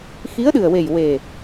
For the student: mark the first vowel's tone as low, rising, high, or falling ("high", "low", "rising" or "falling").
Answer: rising